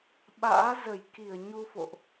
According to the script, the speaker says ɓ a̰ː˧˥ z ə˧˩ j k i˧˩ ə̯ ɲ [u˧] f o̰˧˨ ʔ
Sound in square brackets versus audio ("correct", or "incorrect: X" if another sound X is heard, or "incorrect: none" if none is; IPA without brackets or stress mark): correct